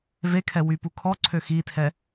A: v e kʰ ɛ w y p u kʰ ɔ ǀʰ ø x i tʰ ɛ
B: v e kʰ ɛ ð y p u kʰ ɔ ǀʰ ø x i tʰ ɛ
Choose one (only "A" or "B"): A